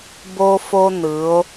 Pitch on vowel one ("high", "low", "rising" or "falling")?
high